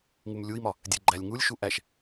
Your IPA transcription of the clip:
ŋ u m lʲ u i̯ m ɒ | dʲ e ɡ͡ǃ æ lʲ ŋ u lʲ ʃ u ʔ æ ʃ

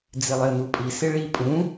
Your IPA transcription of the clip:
d͡z ɪ lˠ ɪ ə̯ n u pʼ i s ɪ ɭ i pʼ ũ

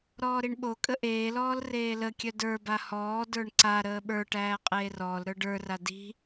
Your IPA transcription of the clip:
ɾ ɔː ɾ i ɳ ɓ o kʼ ə ʔ eː l ɔː l r eː l ə kʲ œ d ə˞ b a h ɔː d ə˞ ɳ ǀ a ɾ əː ɓ ə˞ ʈ æː qʼ eː r ɔː l ɾ ə˞ ɖ ə˞ r a d i̤

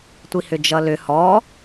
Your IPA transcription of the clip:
tʷ i h ʏ d͡ʒ ʌ l ʏ h ɔ

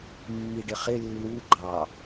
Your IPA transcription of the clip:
mː i ɖ ɪ χ ɪ lː u ɡ͡ǃ ɑ

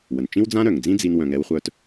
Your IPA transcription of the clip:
w ə˩ n t͡ʃ ĩ˥ w d͡z ã˥ ɾ œ˩ ŋ d͡z ĩ˥ d͡z i˦ n w œ̃˨ ŋ ɛ˦ w χʷ œ˦ t

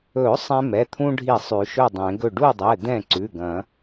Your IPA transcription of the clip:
ɵ˨˩˦ sˤ ɛ̃˦ m ɛ˩˧˩ t̪ʰ ũ˦ ɖʱ i˧˩ sˤ ʉ˨˩˦ ʃ ɵ˥˨ dˤ ẽ˨˩˦ ɡ ɵ˧˩ ɖ u˥˨ dˤ ɛ˩˧˩ d̪ ɛ̃˥˨ ǀ ʉ˩˧˩ ɡ ɐ̃˨˩˦

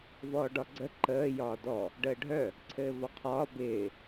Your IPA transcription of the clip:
v ɔː ɖ ɒ ɡ͡ǀ ə ǃ əː j ɒː d ɔ | ɖ əː ɖʱ œ | ǀʰ ɘː v ɒ qʰ ɒː b ɪː

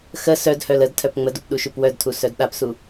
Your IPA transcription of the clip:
x ə s œ d h œ l ə d tʰ œ p ŋ͡m ə d u p ɗ u ʃ u p w œ d tʰ u s œ d ɗ a p s u

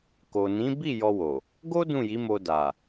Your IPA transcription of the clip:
k o˨ n ĩ˨˦ b i˦˨ j ɔ˧ w o˨ | ɡ o˦ d ũ˦˨ j i˨˦ m o˧ d a˨

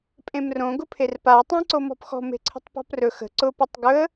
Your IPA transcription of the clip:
pʼ ẽ m r õ ɡ ʊ pʰ e r p a ə̯ tˤ ã ǀ o m ɔ̤ p x ɔ̤ m e̤ ǀʰ ə̤ tˤ p ɔ̤ p r ɵ x ə̤ ǀ ʊ p ʌ tˤ ɡ ɵ ə̯

